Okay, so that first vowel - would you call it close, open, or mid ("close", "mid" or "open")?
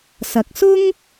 open